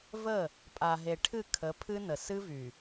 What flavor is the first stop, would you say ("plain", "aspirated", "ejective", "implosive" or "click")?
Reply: ejective